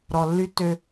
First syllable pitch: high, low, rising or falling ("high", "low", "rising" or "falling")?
low